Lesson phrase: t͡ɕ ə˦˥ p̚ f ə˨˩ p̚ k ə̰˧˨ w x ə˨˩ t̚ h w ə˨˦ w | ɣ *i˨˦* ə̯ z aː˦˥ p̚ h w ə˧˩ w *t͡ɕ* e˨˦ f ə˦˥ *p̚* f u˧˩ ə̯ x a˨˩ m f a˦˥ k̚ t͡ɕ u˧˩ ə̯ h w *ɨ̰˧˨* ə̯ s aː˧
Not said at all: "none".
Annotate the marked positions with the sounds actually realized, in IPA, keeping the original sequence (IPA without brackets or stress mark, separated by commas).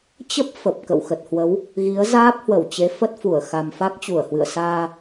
i˨˦, t͡ɕ, t̚, ɨ̰˧˨